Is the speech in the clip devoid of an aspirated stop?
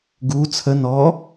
no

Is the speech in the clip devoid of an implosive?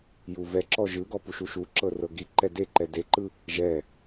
yes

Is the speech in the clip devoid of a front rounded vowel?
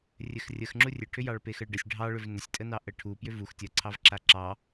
no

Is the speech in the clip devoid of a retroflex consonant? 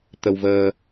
yes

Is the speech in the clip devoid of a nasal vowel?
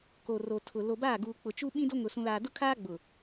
no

